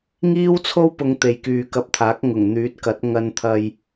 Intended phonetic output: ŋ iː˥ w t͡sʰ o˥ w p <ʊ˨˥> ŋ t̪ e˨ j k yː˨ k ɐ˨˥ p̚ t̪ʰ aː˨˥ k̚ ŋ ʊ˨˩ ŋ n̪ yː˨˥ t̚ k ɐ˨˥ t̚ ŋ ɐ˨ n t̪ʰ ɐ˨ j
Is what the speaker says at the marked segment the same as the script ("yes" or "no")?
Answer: no